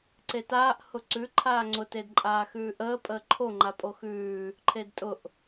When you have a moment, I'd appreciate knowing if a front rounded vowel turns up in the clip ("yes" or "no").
no